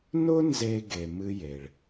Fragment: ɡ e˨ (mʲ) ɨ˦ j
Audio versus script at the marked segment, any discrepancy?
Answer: yes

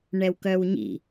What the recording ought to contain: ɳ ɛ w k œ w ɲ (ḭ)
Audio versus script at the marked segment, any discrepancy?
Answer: no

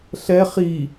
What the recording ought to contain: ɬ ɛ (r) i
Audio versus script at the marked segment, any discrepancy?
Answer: yes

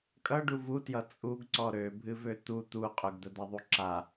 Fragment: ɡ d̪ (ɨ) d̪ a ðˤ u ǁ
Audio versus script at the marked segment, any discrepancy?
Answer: yes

